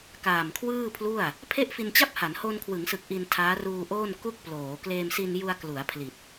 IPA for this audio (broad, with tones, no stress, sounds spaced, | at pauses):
k aː˨˩ m kʰ w ɯː˥˩ pʰ l u˥˩ a̯ | pʰ e˥˩ ʔ f i˧ n t͡ɕ a˥˩ p̚ h a˩˦ n h o˧ n kʰ w ɯ˩˦ ŋ s ɯ˨˩ k̚ ʔ i˧ n tʰ aː˦˥ r uː˧ ʔ oː˥˩ n k u˥˩ k̚ p l oː˩˦ k l eː˧ m s i˧ n j u˧ a̯ k l u˩˦ a̯ pʰ l i˨˩ t̚